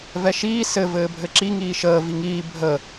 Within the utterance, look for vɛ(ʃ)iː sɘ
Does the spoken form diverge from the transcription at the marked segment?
no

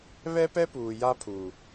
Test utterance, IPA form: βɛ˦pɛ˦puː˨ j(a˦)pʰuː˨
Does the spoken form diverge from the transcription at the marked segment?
no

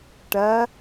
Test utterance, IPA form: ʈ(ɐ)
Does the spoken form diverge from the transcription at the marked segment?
no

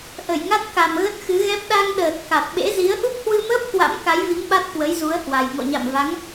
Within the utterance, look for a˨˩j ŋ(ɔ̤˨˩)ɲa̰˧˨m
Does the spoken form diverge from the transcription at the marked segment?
yes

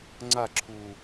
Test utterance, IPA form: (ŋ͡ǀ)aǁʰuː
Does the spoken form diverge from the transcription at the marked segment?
no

